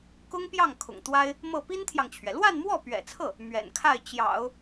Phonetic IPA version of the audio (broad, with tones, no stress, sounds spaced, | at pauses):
k ʊ˥ ŋ p j ɑ˥˩ ŋ kʰ ʊ̰˨˩ ŋ t̪ w a˥ ɪ̯ | m ɤ˥˩ p i˥ n t̪ʰ j ɑ˨ ŋ t͡ɕʰ ɥ ɛ˩ l w a˥˧ n m w ɔ˥˩ p ɥ ɛ̰˨˩ t͡sʰ ɤ˥˩ | m ɥ ɛ̰˨˩ n kʰ a˥˩ ɪ̯ t͡ɕ j ɑ̰˨˩˦ ʊ̯